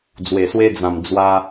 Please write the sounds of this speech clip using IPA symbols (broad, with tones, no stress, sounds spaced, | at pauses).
d͡z w e˨˩ s w e˧ d͡z ã˨˩ m d͡z w a˧